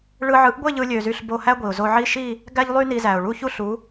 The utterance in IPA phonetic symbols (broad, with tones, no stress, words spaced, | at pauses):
ɭɯ˧ʕɯ˨˥ʔɡʷe˥˧ʎɯ˧ lʲø˧zy˥˧ɬbo˥˧ hæ˥ɡʷi˩ʊ̯zo˧ʕi˥˧ ʃi˥˧ | ɡæ˥ʎlˠy˥ ni˧zæ˩ʊ̯ ɭu˥˧çu˥ɬu˨˥